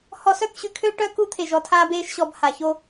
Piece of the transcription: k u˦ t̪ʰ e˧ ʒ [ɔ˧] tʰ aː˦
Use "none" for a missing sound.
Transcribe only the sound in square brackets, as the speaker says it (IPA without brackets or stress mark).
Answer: ɔ˧